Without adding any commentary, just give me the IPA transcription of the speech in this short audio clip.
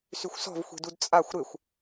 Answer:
syxʷsɔ̤vxʷi̤dud t͡sʼaxʷ ɾɪxʷ

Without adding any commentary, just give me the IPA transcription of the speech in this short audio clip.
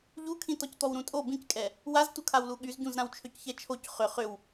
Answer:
ʎukʰĩ tɔct̪ɔwɾũtʼo bĩckʼɛ | waztukʰawlu ɠyzɟũz ɾãwt͡ʃʰøcçɛt͡ʃʰoc χʏ χʏw

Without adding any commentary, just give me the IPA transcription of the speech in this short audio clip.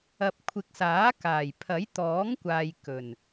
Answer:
ɐ˨p̚kʷʰɪ˨˥k̚saː˨˥ kaː˨˩jpʰɐ˨˥jt̪ɔː˨˥ŋkʷaː˨j kɵ˨˩n

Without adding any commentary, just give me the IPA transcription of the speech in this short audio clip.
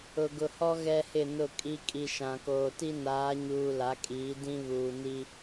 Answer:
ʊ˨ɡʊ˨hɔ˦ ɣɛ˦hɪ˦˨nʊ˦˨ kʼi˦ kʼi˨ʃã˨koː˨ti˦ naː˨˦ɲuː˨ la˨˦kʼiː˨˦ dĩ˦βuː˨ni˦

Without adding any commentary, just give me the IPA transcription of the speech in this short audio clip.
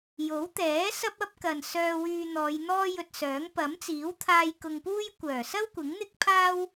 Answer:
jo˨˥wt̪ɛː˨˥ sɐ˥p̚ɐ˥p̚ kɐ˨n sœː˧wyː˧n̪ɔː˨˧j n̪ɔː˥jɵ˧t̚sœː˨˥ŋ pɐ˨˥mt͡siː˨˥wt̪ʰaː˧j kʊ˧ŋpuː˥j kʷœː˨˩sɐ˥w kʷɪ˨˥ŋn̪ɪ˥k̚ pʰaː˥w

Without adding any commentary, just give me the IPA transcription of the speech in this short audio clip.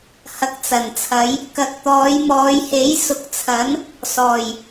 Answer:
hɐ˨k̚t͡sɐ˨˩nt͡sʰɐ˨˧j | kɐ˨k̚t̪ɔː˨˧jmɔː˨˧jhe˨˥j sʊ˨k̚t͡sʰɐ˨˥n | sɔː˨˩j

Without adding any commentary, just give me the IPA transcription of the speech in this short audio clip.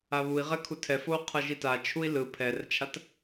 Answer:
aβui̯ʁɛkʰu tʰɛfou̯ qʰʌʒita t͡ʃʰui̯lɯ pʰɛrt͡ʃʰat

